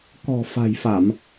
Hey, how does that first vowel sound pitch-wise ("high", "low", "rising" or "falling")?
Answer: low